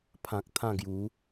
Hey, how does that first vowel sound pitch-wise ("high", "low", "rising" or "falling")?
low